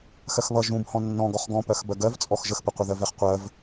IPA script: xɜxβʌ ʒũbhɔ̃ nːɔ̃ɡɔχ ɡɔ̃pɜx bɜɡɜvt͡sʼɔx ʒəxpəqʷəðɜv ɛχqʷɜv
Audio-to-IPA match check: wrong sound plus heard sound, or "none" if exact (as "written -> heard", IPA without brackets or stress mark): none